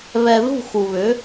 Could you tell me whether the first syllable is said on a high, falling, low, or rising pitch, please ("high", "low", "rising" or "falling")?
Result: low